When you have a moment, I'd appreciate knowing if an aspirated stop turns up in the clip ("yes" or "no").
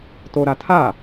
yes